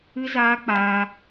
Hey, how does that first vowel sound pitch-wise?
high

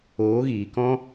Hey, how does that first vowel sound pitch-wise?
rising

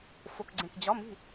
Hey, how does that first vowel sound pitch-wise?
low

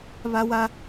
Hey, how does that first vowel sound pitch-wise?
high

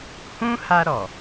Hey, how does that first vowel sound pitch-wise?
high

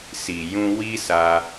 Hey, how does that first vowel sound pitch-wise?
low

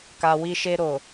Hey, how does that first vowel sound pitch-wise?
low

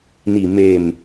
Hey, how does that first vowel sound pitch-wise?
low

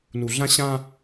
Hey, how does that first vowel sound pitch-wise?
low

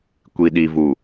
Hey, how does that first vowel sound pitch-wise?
low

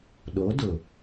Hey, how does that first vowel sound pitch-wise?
rising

